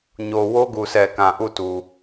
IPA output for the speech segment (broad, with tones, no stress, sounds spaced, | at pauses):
ɲ o˨ w o˦ ɡ u˨ sʰ ɛ˨ k ã˨ ʔ u˦˨ t u˨